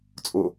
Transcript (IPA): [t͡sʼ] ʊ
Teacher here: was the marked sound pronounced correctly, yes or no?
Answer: yes